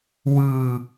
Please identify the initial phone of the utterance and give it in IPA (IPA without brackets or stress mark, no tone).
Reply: w